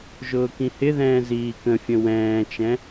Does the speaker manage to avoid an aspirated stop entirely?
yes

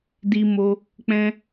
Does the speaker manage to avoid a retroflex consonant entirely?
yes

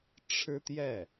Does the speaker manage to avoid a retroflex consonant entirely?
no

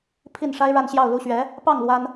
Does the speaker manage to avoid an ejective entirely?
yes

